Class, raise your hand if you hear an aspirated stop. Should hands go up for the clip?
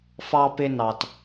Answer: no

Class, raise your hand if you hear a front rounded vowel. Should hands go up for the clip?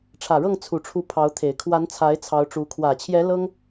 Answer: no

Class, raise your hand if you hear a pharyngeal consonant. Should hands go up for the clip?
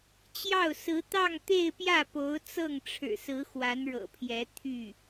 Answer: no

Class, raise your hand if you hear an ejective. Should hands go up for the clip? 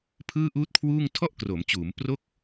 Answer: no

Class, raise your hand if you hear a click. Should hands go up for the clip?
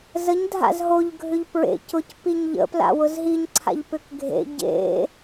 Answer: yes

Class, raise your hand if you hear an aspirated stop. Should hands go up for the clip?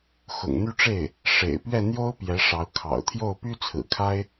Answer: yes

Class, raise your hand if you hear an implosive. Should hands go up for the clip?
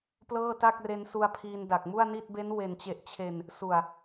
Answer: no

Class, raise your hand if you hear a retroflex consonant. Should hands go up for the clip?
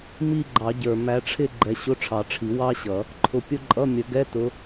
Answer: yes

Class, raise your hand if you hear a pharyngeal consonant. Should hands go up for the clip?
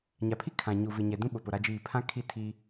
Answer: no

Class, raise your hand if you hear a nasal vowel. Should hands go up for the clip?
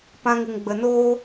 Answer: yes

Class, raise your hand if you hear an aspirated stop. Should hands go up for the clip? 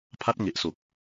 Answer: yes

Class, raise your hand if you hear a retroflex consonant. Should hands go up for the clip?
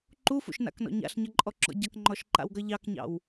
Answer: no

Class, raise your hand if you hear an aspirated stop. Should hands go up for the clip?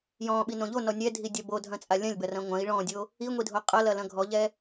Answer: no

